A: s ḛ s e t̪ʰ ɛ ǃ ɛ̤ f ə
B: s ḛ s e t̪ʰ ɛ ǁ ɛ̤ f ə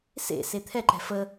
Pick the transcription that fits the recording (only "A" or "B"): A